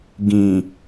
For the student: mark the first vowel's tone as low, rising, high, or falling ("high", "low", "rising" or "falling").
low